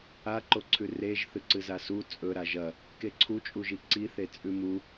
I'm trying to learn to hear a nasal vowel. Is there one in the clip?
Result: no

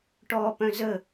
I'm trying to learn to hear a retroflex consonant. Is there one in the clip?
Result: yes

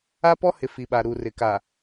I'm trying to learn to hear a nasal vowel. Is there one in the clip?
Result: no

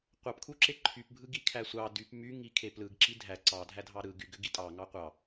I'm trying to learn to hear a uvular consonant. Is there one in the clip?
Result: yes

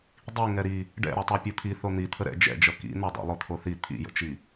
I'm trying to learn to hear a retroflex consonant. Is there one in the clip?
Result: yes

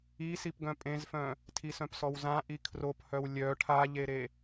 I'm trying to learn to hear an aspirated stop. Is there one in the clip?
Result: yes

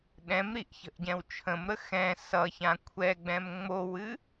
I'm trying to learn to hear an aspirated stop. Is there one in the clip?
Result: yes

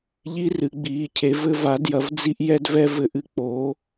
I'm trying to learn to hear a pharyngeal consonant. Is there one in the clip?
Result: no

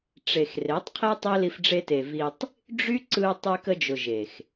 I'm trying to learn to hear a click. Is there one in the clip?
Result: yes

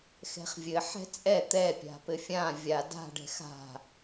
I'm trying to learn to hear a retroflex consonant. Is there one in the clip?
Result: yes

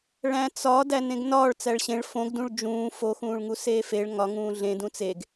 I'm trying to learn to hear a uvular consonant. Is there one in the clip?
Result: no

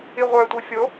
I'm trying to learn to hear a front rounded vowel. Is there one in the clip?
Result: yes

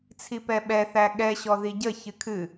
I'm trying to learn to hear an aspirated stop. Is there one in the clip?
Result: yes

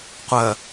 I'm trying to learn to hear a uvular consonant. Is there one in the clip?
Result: yes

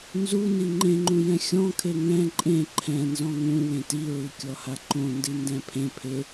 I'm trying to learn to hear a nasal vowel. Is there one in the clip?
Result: yes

